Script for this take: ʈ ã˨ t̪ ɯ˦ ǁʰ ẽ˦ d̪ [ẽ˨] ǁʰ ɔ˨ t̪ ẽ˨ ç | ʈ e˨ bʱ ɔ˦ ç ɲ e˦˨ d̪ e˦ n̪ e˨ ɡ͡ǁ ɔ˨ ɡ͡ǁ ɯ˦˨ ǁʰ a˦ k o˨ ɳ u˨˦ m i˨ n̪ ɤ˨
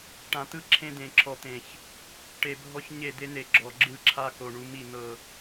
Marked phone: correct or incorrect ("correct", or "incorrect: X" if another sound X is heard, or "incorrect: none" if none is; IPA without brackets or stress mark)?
correct